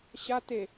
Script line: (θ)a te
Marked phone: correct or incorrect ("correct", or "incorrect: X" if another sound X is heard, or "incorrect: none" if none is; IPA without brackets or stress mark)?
incorrect: ɕ